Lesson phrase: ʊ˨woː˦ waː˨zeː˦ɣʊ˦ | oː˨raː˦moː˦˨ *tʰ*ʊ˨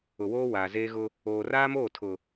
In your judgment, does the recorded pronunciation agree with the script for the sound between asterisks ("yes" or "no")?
yes